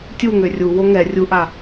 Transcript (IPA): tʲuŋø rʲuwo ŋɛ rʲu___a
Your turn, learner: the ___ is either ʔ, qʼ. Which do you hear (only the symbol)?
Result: ʔ